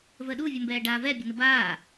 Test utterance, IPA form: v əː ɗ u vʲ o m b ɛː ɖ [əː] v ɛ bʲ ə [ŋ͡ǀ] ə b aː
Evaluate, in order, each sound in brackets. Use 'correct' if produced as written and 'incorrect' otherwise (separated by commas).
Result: incorrect, incorrect